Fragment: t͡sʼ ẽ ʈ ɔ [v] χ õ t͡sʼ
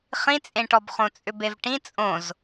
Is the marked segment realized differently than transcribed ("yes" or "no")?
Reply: yes